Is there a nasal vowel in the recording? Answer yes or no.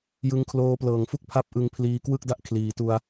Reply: no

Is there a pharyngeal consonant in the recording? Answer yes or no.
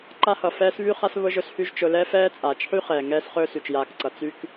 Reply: yes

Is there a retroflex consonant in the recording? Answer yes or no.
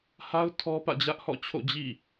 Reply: no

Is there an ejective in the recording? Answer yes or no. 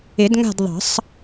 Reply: no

